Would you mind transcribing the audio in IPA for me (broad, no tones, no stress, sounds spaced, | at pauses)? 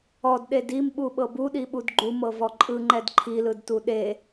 ɔ d ɗ e d i m ɓ u ɓ ɤ b u ɗ i ɓ u d ɡ͡ǃ u m ɤ v ɔ ǃʼ ɯ ŋ͡ǃ ɛ d ǃʰ i l ɯ d t u ɗ e